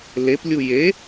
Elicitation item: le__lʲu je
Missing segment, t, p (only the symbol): p